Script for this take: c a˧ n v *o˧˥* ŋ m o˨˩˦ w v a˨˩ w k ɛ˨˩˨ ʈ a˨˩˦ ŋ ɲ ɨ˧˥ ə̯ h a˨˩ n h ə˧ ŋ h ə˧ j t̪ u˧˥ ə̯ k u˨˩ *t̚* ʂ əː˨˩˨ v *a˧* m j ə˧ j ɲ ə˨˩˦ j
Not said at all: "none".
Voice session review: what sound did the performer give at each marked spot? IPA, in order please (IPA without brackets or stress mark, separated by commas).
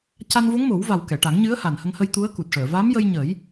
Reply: o˧˥, t̚, a˧˥